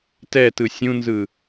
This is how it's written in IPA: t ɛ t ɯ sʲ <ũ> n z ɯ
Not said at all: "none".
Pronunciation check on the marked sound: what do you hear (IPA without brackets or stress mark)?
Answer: ũ